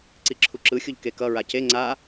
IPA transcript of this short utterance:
ǀiǁʰuǁɯxʲuʎ kekʌ ɹace ŋ͡ǀa

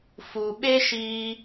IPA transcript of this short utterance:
fu˨ɓe˦ʃiː˧

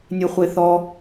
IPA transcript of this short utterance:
nʲeχʷeθɔ

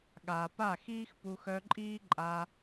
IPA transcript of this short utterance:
ɠaː˨pa˦˨xiː˦x pu˧xœ˧ǃʼiː˦ ǃʼa˧

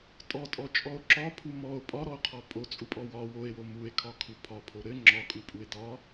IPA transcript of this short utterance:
tʼɔtʼɔt͡ʃʼɔo̯ ǁɒpʰu mɔo̯ pʼɒɾɔo̯qʰɔ pʼot͡sʼupʼɔ wɒ woe̯wo mue̯kʰɒkʰu pʰɒpʰo ɾɘ ŋ͡ǁɒkʼupʼue̯ dɒ

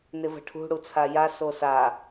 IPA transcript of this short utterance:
nɪvə̤ʈʰṳ ɽut͡sʰaja sosa

